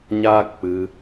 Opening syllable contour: high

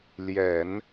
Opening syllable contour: low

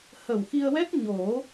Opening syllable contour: low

